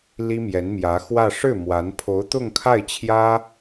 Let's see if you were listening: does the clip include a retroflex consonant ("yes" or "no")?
yes